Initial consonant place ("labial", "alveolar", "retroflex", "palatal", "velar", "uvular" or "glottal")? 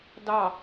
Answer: alveolar